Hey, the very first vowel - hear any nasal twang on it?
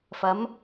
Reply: no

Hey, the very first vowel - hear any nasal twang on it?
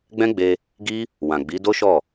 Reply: yes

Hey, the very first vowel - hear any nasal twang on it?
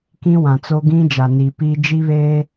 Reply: yes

